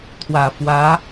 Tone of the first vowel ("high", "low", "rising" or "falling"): low